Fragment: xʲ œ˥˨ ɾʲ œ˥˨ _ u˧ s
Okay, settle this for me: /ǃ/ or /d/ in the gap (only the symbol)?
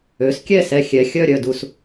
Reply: d